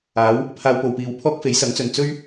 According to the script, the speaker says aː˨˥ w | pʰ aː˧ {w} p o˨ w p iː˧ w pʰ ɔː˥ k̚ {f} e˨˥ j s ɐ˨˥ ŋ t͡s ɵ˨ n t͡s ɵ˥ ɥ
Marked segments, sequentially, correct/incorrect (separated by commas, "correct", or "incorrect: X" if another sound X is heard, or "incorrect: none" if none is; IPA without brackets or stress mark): correct, correct